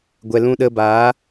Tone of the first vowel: low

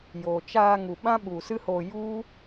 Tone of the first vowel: low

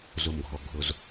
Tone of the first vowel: low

